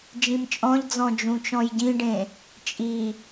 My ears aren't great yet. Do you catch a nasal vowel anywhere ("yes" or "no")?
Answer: yes